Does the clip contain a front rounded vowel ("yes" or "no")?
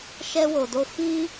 no